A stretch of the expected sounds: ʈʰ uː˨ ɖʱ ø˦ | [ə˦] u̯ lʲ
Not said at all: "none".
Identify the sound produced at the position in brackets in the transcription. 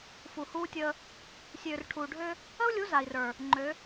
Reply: ə˦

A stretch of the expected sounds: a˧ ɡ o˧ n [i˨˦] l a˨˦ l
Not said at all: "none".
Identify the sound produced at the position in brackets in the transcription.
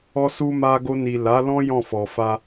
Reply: i˨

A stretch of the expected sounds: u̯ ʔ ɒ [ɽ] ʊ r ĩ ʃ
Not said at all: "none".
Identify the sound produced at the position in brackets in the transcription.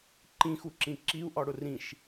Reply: ɽ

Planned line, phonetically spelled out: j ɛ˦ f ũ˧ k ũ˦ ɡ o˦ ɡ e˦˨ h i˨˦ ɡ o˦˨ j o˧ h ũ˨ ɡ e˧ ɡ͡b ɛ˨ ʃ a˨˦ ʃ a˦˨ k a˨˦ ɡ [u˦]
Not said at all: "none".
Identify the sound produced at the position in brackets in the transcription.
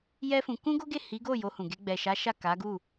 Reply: u˦˨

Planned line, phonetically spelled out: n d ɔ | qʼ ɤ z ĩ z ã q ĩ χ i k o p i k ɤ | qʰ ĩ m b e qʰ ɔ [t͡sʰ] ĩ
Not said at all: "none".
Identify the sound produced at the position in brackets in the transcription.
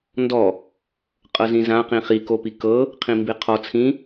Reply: t͡sʰ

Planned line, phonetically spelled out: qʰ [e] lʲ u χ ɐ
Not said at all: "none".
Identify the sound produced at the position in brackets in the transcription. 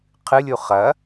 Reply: ɨ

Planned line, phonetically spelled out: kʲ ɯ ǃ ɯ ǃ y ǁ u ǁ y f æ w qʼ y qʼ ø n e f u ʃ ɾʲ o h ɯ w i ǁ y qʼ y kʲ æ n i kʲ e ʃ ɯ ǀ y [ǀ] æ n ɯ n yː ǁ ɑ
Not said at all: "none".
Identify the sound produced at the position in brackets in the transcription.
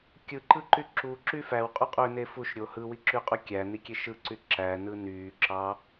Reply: ǁ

